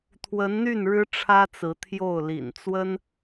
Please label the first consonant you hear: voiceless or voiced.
voiceless